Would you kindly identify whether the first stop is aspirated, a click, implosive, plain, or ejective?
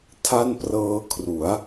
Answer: aspirated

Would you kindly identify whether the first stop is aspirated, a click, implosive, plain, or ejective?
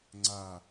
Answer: click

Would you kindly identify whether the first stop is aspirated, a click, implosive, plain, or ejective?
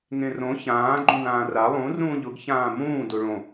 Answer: click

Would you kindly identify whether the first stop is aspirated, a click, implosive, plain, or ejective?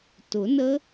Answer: plain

